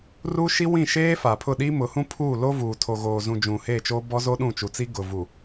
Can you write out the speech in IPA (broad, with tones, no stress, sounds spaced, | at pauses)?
r u˦ ʃ i˦ w ĩ˦˨ ʃ eː˦ f a˨ pʰ ʊ˦˨ ɗ iː˦ m ʊ˨˦ h ũ˦ pʰ uː˦˨ l o˦ v uː˨ tʰ o˨ ɣ oː˨ z ũ˨ d͡ʒ ũ˨ h eː˦˨ t͡ʃ oː˦ b ɔ˦ z o˦ ɗ ũ˦˨ t͡ʃ u˨ t͡s i˦ ɡ ʊ˨ v u˨